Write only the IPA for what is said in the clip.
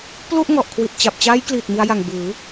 p l u˥˩ ʔ ŋ ɔ˨˩ ʔ kʰ w i˨˩ t̚ t͡ɕ a˨˩ p̚ t͡ɕ aː˦˥ j k l iː˨˩ t̚ m i˧ a̯ j a˨˩ ŋ b ɯː˩˦

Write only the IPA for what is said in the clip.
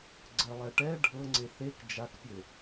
ɡ͡ǀ ɜ lˠ ɛ ʈ ɛ ɖʱ ɤ ŋ͡ǀ e θ e k d͡ʒ a k pʲ ɘ

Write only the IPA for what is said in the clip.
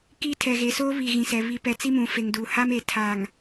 k i˦ tʰ ɛ˨ ɣ e˨ s oː˦ β i˨ ɣ ĩ˨ s ɛ˨ β i˨ p ɛ˨ t͡s i˦ m ũ˨ f e˨ ŋ d uː˨ h a˦ m e˨ tʰ a˨ ŋ

